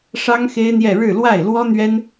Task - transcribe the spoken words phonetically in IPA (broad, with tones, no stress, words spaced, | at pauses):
ʂɑ˥ŋxe˥ɪ̯n̪jɛ˥˧ ɻɻ̩˥˧lwa˥˩ɪ̯lwɔ˥ n̪ɥɛ˥n